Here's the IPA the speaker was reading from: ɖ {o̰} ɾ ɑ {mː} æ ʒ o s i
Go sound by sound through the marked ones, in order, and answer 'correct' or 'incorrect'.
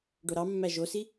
incorrect: o, correct

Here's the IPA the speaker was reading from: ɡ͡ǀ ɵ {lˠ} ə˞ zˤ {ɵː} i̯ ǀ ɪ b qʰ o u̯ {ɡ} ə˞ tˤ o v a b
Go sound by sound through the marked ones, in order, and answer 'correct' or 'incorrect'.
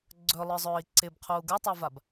correct, correct, correct

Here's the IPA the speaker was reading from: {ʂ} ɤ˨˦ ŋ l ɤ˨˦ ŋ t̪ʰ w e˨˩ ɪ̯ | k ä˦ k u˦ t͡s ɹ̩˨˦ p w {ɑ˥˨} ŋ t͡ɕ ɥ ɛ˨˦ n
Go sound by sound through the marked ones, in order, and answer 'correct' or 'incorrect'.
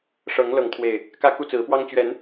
correct, incorrect: ɑ˦

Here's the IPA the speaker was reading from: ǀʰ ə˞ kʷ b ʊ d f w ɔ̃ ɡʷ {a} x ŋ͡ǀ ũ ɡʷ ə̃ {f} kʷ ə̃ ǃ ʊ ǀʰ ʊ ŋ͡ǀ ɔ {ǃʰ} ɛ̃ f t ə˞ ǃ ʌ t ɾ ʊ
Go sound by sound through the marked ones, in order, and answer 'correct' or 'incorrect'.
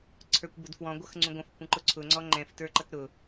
incorrect: ʌ, correct, incorrect: ŋ͡ǃ

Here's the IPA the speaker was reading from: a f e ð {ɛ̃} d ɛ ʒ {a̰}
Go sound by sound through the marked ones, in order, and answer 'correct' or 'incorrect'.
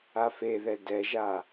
incorrect: ɛ, incorrect: a

